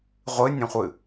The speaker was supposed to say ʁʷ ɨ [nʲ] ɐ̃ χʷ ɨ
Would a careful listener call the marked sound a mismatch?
no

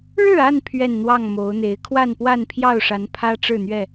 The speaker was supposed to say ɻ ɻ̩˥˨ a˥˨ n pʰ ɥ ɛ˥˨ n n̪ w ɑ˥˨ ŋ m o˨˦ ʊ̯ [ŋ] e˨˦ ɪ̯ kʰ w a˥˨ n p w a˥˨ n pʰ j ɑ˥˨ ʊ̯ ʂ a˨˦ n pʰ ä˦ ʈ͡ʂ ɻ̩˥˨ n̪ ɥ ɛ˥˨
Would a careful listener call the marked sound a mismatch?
yes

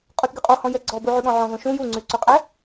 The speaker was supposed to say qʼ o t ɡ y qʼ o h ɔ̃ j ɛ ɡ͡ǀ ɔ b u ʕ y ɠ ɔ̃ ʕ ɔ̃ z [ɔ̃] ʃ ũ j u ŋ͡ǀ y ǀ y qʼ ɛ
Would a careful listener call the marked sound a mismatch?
yes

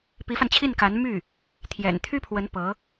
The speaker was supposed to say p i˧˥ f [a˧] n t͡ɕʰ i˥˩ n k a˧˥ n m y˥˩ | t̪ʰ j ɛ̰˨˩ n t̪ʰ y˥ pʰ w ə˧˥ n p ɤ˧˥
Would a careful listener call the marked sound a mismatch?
no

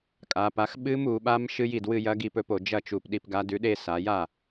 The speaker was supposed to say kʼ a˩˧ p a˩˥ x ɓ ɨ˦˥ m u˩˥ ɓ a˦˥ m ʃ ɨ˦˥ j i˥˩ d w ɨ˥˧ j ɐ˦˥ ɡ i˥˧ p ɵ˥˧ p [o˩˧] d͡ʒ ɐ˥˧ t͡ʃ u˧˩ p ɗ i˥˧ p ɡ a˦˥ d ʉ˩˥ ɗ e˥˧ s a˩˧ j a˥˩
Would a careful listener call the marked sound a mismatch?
no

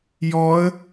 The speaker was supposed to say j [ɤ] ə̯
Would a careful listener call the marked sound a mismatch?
yes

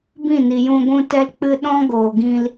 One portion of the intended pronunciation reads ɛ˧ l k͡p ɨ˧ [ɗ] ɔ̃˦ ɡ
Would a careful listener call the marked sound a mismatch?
no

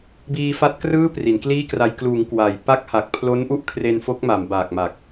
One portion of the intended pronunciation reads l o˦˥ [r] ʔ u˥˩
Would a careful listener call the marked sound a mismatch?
yes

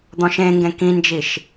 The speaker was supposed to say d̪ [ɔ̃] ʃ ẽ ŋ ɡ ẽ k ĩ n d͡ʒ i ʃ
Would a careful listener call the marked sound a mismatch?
no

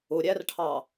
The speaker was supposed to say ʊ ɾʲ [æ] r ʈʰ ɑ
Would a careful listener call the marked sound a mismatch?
no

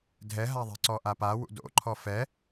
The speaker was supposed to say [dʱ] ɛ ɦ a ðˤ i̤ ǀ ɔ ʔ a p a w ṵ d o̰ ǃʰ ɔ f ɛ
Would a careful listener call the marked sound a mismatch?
no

